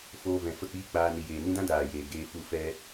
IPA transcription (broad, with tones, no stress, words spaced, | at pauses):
foː˧vɛ̃˨ fə˦˨k͡piː˦k͡paː˧ ni˨jeː˨nĩ˦dã˦ daː˨jeː˨ ɡeː˧fu˧ fɛ˧